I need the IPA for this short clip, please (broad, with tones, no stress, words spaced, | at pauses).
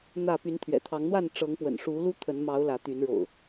n̪ä˥˨ py˨˦nt̪ʰɥɛ̰˨˩t̪ʰɑ˨˦ŋn̪wa˥˨n ʈ͡ʂɤ˨˦ŋpwə̰˨˩nʂu˨˦ lu˦t̪ʰə˨˦nmɑ˨˦ʊ̯ lä˨˦t̪y˨˦nɻo̰˨˩ʊ̯